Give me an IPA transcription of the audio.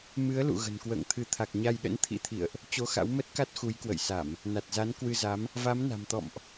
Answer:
m ɨ˨˦ ə̯ l ṵ˧˨ ɣ ə̤˨˩ n k w ə̰ː˧˨ ŋ t̪ʰ ɨ˨˦ t̪ʰ a˨˩ k̚ ɲ a˧ j ɗ ə̰˧˥ n t̪ʰ ḭ˧˥ t̪ʰ ḭ˧˨ ə̯ ʔ | t͡ɕ o˧ x a̰˧˥ w m ə˦˥ t̚ k a˦˥ t̚ x u˨˦ j k w ə̰˧˨ j s a˧˩˨ m | n a˨˩ t̚ z a˨˦ n k w ɨ˧ z a˨˦ m | v a˨˦ m n a̤˨˩ m t̪ ɔ̰˧˨ m ʔ

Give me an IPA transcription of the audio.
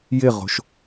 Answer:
j ɪ ʁ o̤ ʃ

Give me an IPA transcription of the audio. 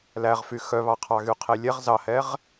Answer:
l æ ʁ f y x œ β ɑ qʰ ɑ ɣ y qʰ e lʲ ɛ ʁ z ɑ h ɛ ʁ

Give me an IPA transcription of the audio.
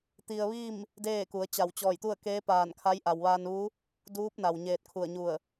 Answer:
t̪ i˧ ə̯ ʋ iː˥˨ m | d eː˥˨ k u˩˧ ə̯ t͡ɕ a˧˩ w t͡ɕ ɔː˧˩ j t̪ u˥˨ ə̯ k eː˧˥ p aː˧˩ n kʰ a˧˥ j ʔ a˩ w ʋ aː˧ n ʋ u˧˥ | d uː˧˥ p̚ n a˩ w ɲ eː˧ t̚ kʰ u˧˩ ə̯ ɲ u˧˩ ə̯

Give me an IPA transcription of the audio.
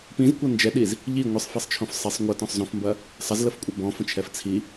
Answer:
p ĩ z kʷ ɐ n d͡ʒ ɛ ɗ i z | ʎ i ŋʷ ɨ sˤ f e sˤ t͡ʃʰ õ f sˤ e sˤ ŋʷ ɐ t ɔ̃ sˤ z õ f m b ɐ | sˤ ɐ z l ə f kʷʼ ɐ b ɔ̃ f ə̃ t͡ʃʰ ɛ f t͡sʰ i

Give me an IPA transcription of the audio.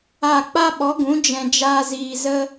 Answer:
a˦˨ k͡p a˦ ɓ ɔ˨˦ ɡ ũ˨˦ d͡ʒ ɛ̃˨ d͡ʒ aː˧ z iː˨ z ə˦

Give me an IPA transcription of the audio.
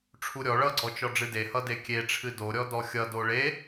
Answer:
ʈ͡ʂʰ u ɾʲ ɔ ɭ ʌ ɡ͡ǀ ɔ t͡ʃ ɔ ɖ͡ʐ ɨ d e h ʌ d e kʲ e ʈ͡ʂʰ ɨ d o ɾʲ ɔ d ɔ xʲ ʌ d o ɭ e

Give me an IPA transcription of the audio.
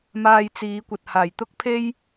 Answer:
m aː˧ j t͡s iː˨˧ kʷ ɐ˨ t̚ h aː˨˩ j t̪ ʊ˥ k̚ pʰ e˥ j

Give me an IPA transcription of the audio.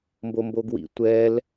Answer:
m b o m b o ɡ w ḭ tʷ ɛ l

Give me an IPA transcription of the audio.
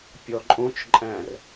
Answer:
pʲ ɔ ǃʼ õ t͡ʃ ǃʼ æ̃ r

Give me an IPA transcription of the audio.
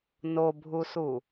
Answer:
n o bʱ u s u

